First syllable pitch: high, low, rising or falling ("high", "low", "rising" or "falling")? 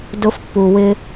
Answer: high